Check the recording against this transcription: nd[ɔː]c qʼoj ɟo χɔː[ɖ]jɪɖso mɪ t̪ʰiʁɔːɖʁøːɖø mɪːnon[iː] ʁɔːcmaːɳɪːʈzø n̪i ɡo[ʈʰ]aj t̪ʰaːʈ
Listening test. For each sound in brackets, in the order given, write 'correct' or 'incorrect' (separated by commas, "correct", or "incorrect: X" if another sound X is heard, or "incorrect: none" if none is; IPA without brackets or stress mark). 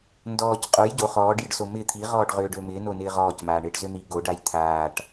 correct, correct, incorrect: ɪː, incorrect: ɖ